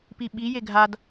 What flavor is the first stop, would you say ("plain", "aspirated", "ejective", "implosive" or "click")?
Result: plain